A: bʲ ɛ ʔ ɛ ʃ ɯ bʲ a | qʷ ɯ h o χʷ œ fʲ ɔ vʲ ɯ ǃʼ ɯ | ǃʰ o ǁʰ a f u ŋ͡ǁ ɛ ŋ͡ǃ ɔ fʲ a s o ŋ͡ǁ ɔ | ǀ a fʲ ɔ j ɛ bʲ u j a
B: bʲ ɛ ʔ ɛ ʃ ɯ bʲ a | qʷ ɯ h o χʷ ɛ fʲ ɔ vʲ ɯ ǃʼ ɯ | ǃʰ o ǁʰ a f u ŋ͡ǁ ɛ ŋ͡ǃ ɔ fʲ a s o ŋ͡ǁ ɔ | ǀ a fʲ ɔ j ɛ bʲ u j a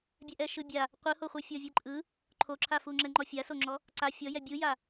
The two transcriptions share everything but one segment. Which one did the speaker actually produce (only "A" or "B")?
B